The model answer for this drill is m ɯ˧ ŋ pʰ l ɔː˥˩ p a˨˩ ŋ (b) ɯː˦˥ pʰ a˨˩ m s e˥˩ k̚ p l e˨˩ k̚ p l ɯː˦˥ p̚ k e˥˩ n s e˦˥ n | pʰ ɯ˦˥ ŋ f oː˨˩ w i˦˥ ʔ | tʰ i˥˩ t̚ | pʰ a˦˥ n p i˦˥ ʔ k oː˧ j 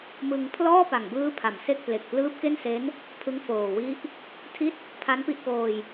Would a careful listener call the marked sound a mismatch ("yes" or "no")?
no